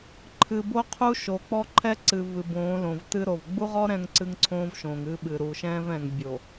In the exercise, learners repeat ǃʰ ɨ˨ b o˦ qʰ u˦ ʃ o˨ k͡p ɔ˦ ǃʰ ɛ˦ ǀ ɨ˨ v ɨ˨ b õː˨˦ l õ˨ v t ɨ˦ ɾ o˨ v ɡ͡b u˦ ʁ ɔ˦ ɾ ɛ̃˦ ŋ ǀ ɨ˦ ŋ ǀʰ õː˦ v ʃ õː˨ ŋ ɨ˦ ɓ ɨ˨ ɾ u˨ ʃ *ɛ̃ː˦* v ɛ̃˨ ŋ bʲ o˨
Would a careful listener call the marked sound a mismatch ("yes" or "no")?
no